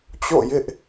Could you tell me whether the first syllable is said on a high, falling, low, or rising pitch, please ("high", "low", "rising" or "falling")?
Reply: falling